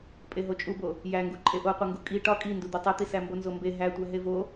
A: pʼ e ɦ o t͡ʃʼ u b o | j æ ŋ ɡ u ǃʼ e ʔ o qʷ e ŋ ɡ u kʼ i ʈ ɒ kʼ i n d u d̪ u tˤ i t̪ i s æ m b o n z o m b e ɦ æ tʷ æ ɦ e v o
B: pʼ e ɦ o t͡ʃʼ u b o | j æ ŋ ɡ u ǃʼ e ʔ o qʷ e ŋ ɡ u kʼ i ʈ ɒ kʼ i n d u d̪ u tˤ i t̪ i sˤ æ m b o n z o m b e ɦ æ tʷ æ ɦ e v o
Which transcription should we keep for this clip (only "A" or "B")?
A